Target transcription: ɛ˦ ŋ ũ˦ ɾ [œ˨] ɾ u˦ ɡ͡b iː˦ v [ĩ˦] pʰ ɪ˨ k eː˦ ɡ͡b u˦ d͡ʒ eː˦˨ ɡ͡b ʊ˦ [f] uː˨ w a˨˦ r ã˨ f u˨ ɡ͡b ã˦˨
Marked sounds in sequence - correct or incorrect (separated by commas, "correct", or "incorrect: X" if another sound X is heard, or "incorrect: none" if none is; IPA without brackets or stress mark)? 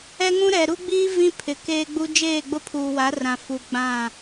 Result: incorrect: ɛ˨, correct, incorrect: pʰ